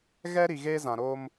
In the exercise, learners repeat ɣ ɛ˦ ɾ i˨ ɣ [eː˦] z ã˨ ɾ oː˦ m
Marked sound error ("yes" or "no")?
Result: no